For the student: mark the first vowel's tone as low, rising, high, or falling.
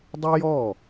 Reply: high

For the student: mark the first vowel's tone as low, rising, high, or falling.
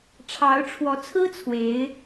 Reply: rising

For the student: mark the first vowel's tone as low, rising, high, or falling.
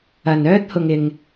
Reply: low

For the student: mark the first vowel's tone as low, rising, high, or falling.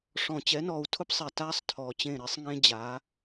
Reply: low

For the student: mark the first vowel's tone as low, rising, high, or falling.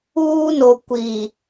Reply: high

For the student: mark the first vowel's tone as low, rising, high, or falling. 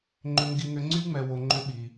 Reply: high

